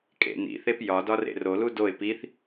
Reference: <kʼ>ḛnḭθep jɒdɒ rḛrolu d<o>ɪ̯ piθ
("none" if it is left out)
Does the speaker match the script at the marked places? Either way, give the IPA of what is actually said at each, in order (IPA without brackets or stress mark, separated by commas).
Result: kʼ, o